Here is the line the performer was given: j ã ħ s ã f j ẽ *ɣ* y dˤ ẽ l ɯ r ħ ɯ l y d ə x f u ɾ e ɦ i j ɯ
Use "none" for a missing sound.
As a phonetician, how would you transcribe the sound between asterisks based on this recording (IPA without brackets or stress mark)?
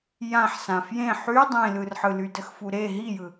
ħ